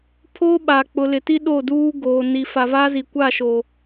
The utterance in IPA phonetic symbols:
pʰ oː˦ ɓ aː˨ k͡p ʊ˨ l ɪ˨ t i˦ ɗ o˦˨ d uː˦ ɡ oː˨ n i˨ f a˨ v a˦ z i˨ kʷ a˦˨ ʃ o˨

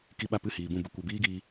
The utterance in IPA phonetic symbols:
k i˧ ɓ a˧ p ɨ˦˨ h iː˨ b ũ˦˨ b ɨ˧ kʷ ɛ˨ b iː˦ ɡ iː˧

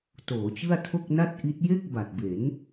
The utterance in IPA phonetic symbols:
t oː˩˦ t͡ɕ ɯ˥˩ a̯ tʰ o˥˩ k̚ n a˥˩ t̚ ʔ i˦˥ t̚ j e˥˩ k̚ b a˨˩ t̚ b e˩˦ n

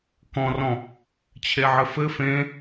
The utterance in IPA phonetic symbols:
k ɔ̃ r ɔ̃ | t͡ɕʰ e ʕ ɘ f ɘ f ẽ

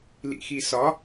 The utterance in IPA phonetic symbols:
l ḭ x i s ɒ

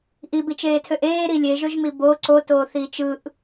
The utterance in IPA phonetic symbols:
ʔ i b i t͡ʃ eː tʰ ø ʔ eː ɾ i lʲ e ʒ ø ʒ m i b o ǀ o t oː θ iː t͡ʃ ɯ ʔ

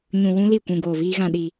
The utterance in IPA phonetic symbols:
ɲ ũ˧ w ũ˦ l i˦˨ kʷ ũ˧ ɡ oː˧ v iː˦ ɣ ã˧ ɗ i˧

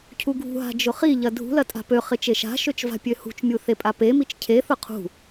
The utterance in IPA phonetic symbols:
cʰ u ɡʱ ṳ ɦ a̤ d͡ʒ ʊ χ i ʎ ɐ dʱ ṳ l ɐ tʼ a̤ p ø χ ɪ t͡ʃ e ʃ a̤ ʃ ø t͡ʃ v a̤ pʲ ø h ṳ t͡ʃ mʲ u θ e pʼ a p e m i t͡ʃ cʰ e θ ʊ qʰ ṳ

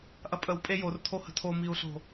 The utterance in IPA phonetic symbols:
ʔ ɐ pʼ ə w pʼ e j o r tʰ o h ə̤ tʰ o m i u̯ ɬ o̤

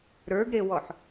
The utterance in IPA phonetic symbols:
ɾ ə˞ ɡ ɾ e w ɔ ħ

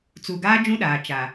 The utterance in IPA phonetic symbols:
t͡s u˨ ɡ aː˦ d͡ʒ ũ˦ ɗ aː˨ t͡ʃ a˨

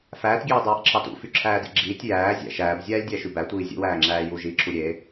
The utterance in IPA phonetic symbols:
f æː t ɡʲ eː dˤ æː ʔ ǁʰ ɑ t ṵ f y ǁʰ æː d ḭ ɡ͡ǁ iː tʲ j æː zʲ æ̰ ʃ æː b zʲ æː lʲ dʲ æ ʃ y b æ tʷ iː zʲ ṵ w æː ŋ͡ǁ æː j u ʒ iː ǁʰ u ɾʲ eː

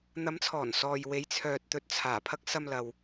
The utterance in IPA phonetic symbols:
n̪ ɐ˨˧ m t͡sʰ ɔː˨˩ n s ɔː˨ j w e˨˧ j t͡sʰ œː˨ t̚ t̪ ɵ˨ t̚ t͡sʰ aː˨˩ pʰ ɐ˧ k̚ s ɐ˧ m l ɐ˨ w

